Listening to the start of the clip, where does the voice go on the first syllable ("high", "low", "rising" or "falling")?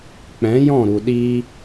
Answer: rising